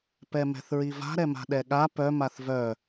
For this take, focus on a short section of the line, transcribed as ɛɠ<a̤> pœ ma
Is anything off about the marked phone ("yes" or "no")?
yes